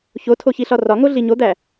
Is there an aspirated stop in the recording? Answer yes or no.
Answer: yes